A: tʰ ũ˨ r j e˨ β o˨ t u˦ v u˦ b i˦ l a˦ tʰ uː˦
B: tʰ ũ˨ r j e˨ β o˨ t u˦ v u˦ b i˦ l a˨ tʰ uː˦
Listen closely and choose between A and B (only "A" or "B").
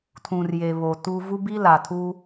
B